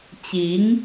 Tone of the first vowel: rising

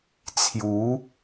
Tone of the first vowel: rising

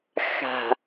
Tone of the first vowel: low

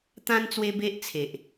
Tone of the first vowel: high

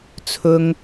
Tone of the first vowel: high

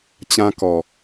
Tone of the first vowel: high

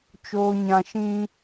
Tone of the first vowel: low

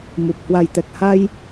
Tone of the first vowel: low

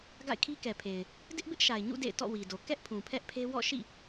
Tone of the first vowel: falling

